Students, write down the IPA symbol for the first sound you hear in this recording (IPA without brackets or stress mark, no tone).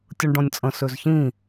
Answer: tʲ